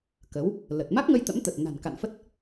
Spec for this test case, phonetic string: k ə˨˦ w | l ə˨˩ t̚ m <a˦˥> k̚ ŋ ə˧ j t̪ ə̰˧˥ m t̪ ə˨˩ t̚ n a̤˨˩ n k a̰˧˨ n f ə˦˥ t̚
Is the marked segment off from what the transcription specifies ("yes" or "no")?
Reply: no